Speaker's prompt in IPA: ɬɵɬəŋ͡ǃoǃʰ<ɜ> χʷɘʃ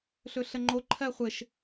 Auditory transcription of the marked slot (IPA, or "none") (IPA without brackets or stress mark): ɜ